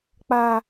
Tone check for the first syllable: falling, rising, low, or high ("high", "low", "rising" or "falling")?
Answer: high